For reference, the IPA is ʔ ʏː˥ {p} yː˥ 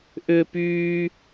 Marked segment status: correct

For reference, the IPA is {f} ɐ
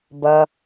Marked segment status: incorrect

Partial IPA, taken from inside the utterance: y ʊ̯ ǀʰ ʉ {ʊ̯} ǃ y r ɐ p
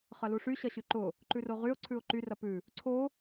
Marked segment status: correct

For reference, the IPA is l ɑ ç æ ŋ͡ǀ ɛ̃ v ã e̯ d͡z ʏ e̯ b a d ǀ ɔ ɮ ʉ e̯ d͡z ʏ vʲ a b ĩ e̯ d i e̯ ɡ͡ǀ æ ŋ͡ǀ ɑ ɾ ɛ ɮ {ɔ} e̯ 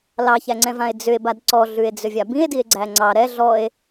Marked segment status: correct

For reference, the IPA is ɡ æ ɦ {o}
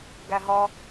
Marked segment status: incorrect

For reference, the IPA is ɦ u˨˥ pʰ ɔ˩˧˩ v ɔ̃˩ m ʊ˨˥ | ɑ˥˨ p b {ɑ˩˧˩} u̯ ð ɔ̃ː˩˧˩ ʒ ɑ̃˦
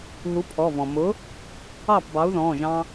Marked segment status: incorrect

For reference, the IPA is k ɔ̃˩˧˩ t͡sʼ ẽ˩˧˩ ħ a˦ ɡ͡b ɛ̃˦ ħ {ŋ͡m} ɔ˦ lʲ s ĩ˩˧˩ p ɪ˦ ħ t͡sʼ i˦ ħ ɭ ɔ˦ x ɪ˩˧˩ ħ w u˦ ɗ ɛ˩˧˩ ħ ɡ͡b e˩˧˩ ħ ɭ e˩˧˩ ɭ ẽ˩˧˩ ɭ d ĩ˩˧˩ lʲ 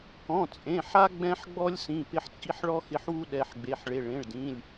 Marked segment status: incorrect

